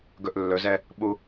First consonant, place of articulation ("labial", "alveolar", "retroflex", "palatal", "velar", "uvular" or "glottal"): velar